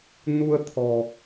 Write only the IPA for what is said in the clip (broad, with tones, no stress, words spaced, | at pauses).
nu˧ə̯t̪ʰɔ̤˨˩